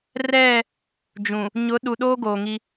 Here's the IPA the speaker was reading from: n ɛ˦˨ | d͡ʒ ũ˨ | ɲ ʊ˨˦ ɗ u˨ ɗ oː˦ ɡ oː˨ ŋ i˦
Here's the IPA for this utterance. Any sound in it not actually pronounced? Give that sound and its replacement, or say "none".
n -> r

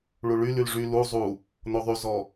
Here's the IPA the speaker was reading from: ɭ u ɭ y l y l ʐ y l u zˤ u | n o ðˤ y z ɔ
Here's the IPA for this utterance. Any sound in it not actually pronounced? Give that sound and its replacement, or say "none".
none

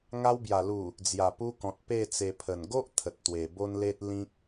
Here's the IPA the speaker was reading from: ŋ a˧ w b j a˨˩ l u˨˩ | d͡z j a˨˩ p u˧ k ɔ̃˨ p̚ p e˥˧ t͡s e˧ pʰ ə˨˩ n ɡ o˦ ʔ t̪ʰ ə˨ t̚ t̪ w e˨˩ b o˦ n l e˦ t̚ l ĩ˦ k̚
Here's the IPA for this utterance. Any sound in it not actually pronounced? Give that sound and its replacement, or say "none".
p̚ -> t̚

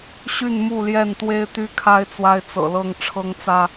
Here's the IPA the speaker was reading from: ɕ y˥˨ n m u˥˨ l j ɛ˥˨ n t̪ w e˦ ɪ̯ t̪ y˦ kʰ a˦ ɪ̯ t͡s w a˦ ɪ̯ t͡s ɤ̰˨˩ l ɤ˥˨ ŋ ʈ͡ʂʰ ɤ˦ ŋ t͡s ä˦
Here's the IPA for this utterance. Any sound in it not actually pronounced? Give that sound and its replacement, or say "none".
none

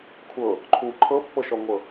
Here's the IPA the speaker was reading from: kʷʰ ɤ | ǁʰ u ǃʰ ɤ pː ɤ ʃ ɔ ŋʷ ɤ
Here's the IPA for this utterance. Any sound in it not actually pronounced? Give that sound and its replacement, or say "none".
ǁʰ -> ǃʰ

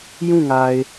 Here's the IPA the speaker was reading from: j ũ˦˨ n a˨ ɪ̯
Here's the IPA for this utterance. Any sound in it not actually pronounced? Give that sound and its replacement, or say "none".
n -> ŋ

